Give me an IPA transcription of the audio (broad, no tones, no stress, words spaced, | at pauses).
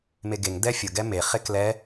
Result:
meɡeŋ dɛfʲʊ ɡɛme χeklɛ